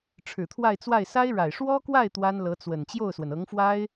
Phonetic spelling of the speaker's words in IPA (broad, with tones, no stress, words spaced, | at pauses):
ʈ͡ʂʰɻ̩˨˩t̪ʰwa˥˧ɪ̯t͡swa˥˩ɪ̯ sa˥ɪ̯ɻa˨˩ɪ̯ ʂwɔ˥kwa˥˩ɪ̯ t̪wa˥nlɤ˧˥t͡swə˨˩n t͡ɕjo˥˩ʊ̯swə˩nɤ˧˥ŋfwa˥ɪ̯